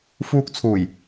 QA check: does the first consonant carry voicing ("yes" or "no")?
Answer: no